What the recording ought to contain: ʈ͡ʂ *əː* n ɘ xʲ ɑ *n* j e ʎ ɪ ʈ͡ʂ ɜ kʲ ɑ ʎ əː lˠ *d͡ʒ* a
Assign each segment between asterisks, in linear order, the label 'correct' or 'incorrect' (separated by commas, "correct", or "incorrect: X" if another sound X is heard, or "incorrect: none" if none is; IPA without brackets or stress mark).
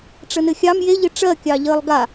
incorrect: ə, incorrect: m, incorrect: ɡ